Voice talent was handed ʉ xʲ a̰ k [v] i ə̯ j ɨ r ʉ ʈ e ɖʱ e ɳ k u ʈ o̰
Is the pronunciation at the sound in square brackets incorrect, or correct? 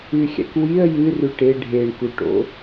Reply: incorrect